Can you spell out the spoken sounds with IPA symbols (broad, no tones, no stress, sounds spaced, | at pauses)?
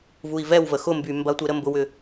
v u i̯ v ɛ w v ə x ʊ m b y m b ɐ tʷ e ɾ ə m b ʊ w ʏ